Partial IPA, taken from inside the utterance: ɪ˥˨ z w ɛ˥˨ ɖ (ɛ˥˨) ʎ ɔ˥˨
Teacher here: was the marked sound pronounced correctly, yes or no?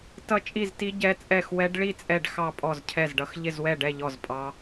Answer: yes